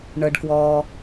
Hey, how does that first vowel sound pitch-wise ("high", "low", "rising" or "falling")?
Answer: low